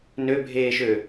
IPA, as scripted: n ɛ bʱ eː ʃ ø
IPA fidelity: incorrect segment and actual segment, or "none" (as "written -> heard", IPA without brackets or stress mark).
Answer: ɛ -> ø